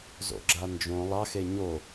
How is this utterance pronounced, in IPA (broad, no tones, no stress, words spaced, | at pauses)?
zo̰ɡ͡ǁand͡ʒõ lˠɑxe ɲo